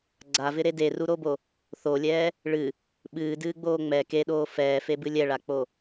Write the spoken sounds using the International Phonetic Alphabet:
ɡ͡ǀ a v ɪ ɾ e d e r u ɾ o b o | θ o lʲ ɛː | ɭ ɨ | ɓ ɨː d ɨː ɡ͡b oː ŋ͡m ɛ k e ɗ oː f ɛː f e b ɨ lʲ ɛ ɭ a k͡p o

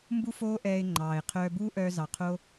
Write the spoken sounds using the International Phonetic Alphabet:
m b u˦ f oː˦ ʔ ɛː˧ ɪ̯ ŋ͡ǃ ɑː˨ ɪ̯ qʰ œː˧ b uː˦ ʔ œː˧ z ɑ˨ qʰ o˧

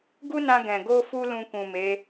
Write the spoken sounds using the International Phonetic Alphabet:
ɡ u˦ n ã˧ ɡ ɛ̃˨ ɡ o˧ f u˧ l ũ˧ k ũ˨ m e˨˦

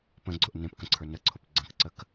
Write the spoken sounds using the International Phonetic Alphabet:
p ə̃ ɡ͡ǀ ʊ ʔ n ẽ p k ə̃ ǀʰ ə˞ n ə ǀʰ ʊ p ɡ͡ǀ ə̃ k ǀ ə k

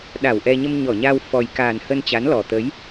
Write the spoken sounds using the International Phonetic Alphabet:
ɗ a˧˩ w ʔ ɛ˧ ɲ ə˧ m ɲ ɔ˧˩ ɲ a˧ w f ɔ˨˩ j k aː˨˩ n h ə˧ n t͡ɕ a˨˦ n l ɔ˨˩ t̪ ə˨˦ j

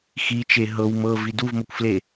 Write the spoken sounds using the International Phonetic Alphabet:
x i t͡ʃ e ɦ ɤ w m ɤ v i d u v m ɤ kʷ f l e

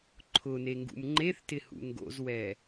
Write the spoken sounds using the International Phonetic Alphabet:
ǃʰ ʊ n e ŋ ɡ ṵ m ŋ͡ǃ e θ t ɪ h ṵ ŋ ɡ o̰ z w ɛ

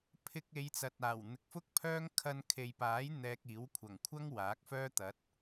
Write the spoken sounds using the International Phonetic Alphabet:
pʰ ɪ˧ k̚ e˨˧ j t͡s ɐ˨ t̚ aː˨˩ w n̪ ɪ˨˥ k̚ f ʊ˥ k̚ pʰ œː˥ ŋ kʰ ɐ˧ n kʰ e˨ j p aː˨˥ j n̪ ɛː˧ k̚ iː˨˥ w kʷʰ ɐ˨˩ ŋ kʷʰ ɐ˥ ŋ w aː˨˥ k̚ f œː˥ t̪ ɐ˨˥ t̚

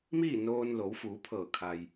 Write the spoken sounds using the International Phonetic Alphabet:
m iː˥˨ n oː˧ n l o˩˧ w f uː˩˧ pʰ ɤː˧˩ kʰ a˩ j

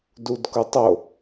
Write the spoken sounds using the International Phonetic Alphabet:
d u d k ʊ tˤ o

